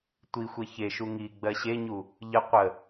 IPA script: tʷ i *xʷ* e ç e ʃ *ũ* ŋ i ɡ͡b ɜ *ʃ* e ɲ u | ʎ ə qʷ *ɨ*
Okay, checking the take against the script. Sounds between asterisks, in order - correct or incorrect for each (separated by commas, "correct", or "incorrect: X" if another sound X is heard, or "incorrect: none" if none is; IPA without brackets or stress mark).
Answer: correct, incorrect: u, incorrect: ɕ, incorrect: ə